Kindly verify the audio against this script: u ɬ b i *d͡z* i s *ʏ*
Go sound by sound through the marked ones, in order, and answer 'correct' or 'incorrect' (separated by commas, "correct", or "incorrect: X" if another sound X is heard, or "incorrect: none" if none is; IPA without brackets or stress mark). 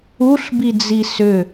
correct, correct